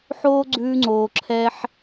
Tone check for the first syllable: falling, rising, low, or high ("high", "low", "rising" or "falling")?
high